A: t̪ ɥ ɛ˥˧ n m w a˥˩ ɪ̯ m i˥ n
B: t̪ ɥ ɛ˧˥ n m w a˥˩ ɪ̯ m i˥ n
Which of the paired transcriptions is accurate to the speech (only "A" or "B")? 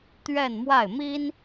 A